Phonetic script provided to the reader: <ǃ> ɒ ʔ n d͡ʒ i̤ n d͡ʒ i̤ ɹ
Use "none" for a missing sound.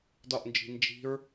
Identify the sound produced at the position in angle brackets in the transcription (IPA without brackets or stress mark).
d